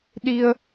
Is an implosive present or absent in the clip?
present